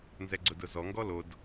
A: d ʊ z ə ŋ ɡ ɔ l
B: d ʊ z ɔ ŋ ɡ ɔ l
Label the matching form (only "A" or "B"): B